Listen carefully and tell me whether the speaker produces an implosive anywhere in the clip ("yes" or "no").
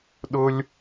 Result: yes